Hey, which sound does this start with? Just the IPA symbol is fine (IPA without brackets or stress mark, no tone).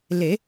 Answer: l